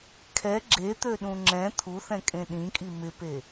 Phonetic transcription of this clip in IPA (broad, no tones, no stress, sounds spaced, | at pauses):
kʰ ɛ ɡ͡ǁ e t̪ ø ɗ ũ ŋ͡ǁ ɛ̃ t̪ʰ u θ ɛ̃ kʼ ẽ ɗ ĩ kʼ i m ɪ p e